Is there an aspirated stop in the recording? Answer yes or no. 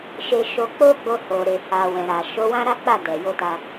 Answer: no